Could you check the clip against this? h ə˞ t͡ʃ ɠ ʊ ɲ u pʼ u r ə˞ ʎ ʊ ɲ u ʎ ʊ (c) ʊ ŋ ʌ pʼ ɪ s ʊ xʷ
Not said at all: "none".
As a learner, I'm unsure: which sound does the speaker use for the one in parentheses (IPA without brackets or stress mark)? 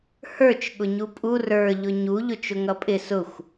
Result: t͡ʃ